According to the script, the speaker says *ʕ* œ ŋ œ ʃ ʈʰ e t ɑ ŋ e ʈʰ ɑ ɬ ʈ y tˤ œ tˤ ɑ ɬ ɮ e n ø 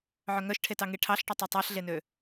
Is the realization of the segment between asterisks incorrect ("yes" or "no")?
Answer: no